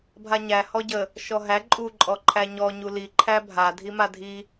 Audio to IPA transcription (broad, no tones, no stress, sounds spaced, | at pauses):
bʱ a ɲ æ h ɔ ɟ ə | ʃ ɔ ɦ æ ǃʼ u ǃʼ ɔ ǃʰ æ ɲ ɔ ɲ u l i ǃʰ æ bʱ a dʱ i m a dʱ i